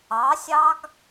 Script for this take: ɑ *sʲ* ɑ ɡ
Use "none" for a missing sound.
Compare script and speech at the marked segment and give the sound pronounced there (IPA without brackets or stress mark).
sʲ